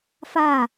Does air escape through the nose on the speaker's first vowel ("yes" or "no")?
no